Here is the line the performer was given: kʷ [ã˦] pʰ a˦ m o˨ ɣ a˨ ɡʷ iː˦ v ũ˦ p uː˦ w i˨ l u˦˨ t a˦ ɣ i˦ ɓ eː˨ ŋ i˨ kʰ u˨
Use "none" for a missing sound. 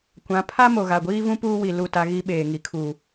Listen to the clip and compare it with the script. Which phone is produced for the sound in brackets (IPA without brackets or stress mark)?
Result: ã˨˦